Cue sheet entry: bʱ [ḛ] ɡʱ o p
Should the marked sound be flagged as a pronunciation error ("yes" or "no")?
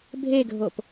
yes